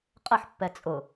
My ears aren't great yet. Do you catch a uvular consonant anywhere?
yes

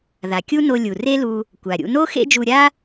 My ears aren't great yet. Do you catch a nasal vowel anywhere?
no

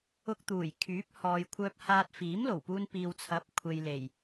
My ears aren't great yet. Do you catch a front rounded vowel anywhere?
yes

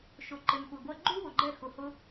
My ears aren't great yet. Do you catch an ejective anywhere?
no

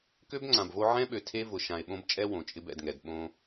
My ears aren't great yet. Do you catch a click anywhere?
yes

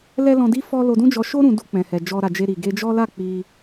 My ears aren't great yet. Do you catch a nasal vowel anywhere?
yes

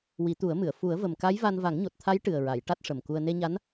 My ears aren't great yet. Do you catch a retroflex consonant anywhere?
yes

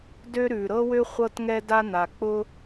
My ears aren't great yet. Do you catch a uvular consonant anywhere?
yes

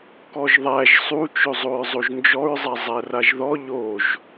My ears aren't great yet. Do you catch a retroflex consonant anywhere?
no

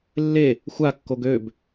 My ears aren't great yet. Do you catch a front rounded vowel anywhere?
yes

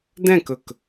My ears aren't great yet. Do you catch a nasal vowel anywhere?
yes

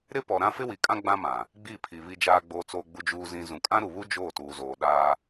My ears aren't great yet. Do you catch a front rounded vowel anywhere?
no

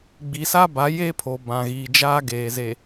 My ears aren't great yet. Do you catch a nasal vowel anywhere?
yes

